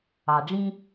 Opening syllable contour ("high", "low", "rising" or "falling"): low